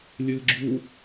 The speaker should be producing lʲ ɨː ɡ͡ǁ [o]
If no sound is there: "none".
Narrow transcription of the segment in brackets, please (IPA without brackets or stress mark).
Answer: u